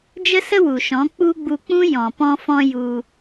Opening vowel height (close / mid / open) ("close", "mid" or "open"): mid